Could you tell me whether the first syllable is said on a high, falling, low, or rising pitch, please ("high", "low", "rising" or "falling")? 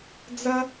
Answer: high